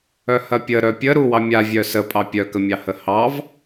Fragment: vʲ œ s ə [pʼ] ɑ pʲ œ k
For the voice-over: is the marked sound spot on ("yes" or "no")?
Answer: yes